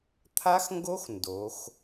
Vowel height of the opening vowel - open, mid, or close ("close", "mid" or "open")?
open